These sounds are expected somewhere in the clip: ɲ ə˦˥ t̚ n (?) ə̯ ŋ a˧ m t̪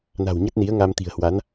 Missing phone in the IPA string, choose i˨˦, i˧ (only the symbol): i˨˦